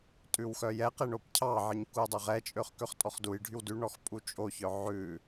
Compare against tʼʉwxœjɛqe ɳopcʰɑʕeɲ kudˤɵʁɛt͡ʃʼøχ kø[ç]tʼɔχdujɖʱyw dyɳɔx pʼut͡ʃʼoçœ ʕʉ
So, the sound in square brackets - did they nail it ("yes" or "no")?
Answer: no